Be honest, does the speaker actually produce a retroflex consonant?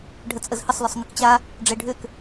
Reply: yes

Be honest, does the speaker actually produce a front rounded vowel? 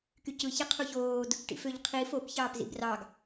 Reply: yes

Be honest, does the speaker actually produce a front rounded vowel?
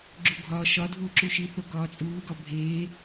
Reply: no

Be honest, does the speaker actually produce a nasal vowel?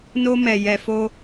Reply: no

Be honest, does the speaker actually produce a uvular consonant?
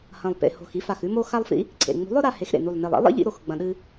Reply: no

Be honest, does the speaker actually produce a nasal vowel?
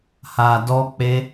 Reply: no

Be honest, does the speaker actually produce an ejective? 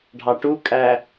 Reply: yes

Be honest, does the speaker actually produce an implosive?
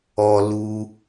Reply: no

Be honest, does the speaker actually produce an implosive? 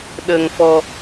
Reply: yes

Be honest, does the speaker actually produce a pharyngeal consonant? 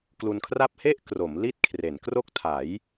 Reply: no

